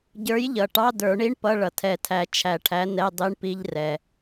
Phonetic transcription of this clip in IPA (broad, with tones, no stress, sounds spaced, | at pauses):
ɟ ə˞˨˥ j ʎ ʌ˩ ʈ ɑ˧˥˧ d ə˞˨˩˦ ɳ i˧˥˧ ɳ p ʌ˧˥˧ ɭ ʌ˩ tʰ ɛ˨˩˦ tʰ æ˨˩˦ t͡ʃʰ æ˨˩˦ ʈʰ æ˨˥ n ɛ˧˥˧ dˤ i˧˥˧ ɳ p i˧˥˧ ʎ r ɛ˩